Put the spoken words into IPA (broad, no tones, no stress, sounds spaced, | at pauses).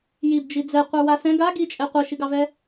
j i b d͡ʒ i d͡z ɛ qʷ ə˞ w a s ɛ̃ ɡ a ɡ i t͡ʃʼ ɛ qʷ ɛ ʃ i ɡ ɑ v ɛ